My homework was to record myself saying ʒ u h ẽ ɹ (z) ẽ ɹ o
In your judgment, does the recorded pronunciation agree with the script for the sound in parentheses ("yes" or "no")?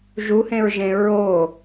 no